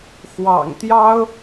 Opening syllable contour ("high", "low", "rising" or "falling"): low